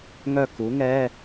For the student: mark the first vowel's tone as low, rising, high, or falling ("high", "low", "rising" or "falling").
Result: falling